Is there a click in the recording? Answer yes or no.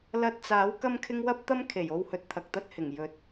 no